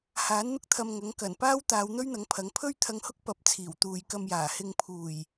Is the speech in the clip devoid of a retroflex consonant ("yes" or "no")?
yes